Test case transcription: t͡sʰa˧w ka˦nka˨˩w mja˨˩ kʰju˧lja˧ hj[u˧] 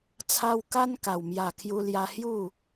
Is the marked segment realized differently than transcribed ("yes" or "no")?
yes